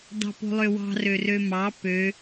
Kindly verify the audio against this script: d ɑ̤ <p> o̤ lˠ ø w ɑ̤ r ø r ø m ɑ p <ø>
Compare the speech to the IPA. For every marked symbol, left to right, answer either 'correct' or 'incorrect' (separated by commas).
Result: correct, correct